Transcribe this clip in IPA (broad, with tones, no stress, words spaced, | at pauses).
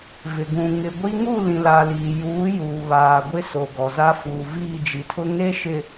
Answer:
vɪ˨ɡũ˨ ŋɪ˨ɡʷi˦ ŋu˦˨lĩ˨la˨ liː˨juː˨˦ juː˨βaː˨ ɡʷɪ˦so˨ɡɔ˨za˦ fuː˨viː˦˨d͡ʒi˨tʰʊ˦ ŋe˦ʃɪ˨